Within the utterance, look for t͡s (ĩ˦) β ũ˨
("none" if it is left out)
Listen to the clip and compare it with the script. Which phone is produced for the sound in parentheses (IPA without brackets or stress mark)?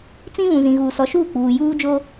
ĩ˦